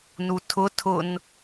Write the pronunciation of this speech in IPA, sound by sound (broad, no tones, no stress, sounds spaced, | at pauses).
n u tʰ ʊ tʰ ʊ n